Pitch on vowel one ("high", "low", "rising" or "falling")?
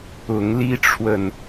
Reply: rising